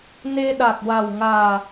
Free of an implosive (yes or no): no